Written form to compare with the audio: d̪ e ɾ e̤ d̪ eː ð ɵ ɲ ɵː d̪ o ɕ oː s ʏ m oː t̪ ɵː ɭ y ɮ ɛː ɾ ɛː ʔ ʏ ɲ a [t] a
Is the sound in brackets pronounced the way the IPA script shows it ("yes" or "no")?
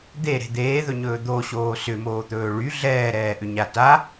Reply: yes